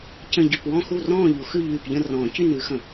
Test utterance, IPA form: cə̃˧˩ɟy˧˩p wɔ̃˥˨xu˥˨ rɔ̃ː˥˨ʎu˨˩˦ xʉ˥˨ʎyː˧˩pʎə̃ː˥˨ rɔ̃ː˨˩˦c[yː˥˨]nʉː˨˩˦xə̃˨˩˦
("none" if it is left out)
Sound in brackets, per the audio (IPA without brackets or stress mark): y˥˨